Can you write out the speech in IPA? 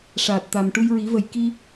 ʂaː˨˩t̚t̪a˨˩m ʈu˧jɹi˨˩˦və˨˩j ki˧

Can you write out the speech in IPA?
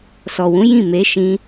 sɔ˨wũ˨˦ jĩ˦˨me˨˦ʃĩ˧

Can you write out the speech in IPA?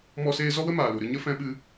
mɔ˦seː˦ zɔ˦wə˦maː˨lu˨ ɾɨ˧ɲə˦ fɛ̃˧ɓɨ˧

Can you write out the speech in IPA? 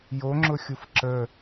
joŋ͡ǁʊxʲuf ǁə

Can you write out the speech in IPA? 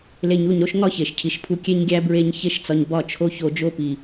le˧ɲu˦˨ɲɾo˦ʃ ŋɒ˦çe˨ʃcʰi˨ʃpʰu˧ kʲe˦ɲɡʲæ˦ bɹe˦ɲ çe˦ʃt͡sɒ˧ɲ bɒ˦˨t͡ʃʰo˦ço˧ d͡ʒo˧pi˨

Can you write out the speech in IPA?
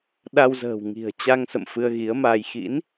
ɗa˧wzə̤ː˨˩w ŋi̤˨˩ə̯t͡ɕa˧ŋsə̰˧˨m fɨ˧ə̯ɣi˨˦ə̯maː˧j xḭ˧˥n

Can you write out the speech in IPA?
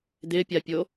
d̪ɪpʲapʲo

